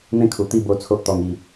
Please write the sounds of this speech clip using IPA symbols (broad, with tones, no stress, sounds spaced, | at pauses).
n̪ ẽ˦ kʰ u˨˩ t̪ i˥˧ b o˧ t͡sʰ o˦ ʔ t̪ ɔ˧ ŋ i˧